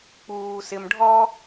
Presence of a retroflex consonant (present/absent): present